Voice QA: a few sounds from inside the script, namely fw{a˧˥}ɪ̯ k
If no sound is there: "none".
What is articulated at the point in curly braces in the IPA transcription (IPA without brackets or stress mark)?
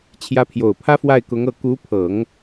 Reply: a˥˩